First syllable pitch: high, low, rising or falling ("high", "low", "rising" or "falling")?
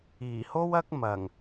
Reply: low